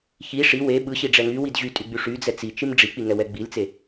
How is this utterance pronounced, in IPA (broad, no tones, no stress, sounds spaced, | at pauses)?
ç i ʂ i w e ɓ ɯ ɕ i ɖ͡ʐ ɛ ŋ y w i d ʑ y tʼ y ɡ͡b y ʂ y d͡z ɛ t͡s i t͡ʃ i m ɖ͡ʐ i k͡p i ŋ ɛ w ɛ ɡ͡b i l t͡s e